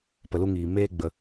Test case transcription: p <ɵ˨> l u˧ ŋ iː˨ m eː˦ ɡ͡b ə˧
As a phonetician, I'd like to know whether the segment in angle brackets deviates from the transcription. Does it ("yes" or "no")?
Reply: yes